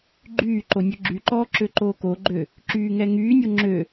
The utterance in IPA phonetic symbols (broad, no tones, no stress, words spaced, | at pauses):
ɡ͡ǃyː ǃonʲɵɡ͡ǁyǃɔː ǁøǃoːkoɡ͡ǃø | ǁyːŋɛŋyːnʲo ŋ͡ǁø